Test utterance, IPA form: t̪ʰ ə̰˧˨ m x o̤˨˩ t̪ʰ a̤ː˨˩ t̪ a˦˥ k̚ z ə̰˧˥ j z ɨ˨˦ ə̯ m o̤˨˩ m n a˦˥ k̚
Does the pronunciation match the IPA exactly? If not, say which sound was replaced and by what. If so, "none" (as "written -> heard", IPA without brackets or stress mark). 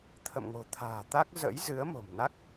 x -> ŋ